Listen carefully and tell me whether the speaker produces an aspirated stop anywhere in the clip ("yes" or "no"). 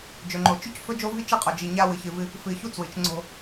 no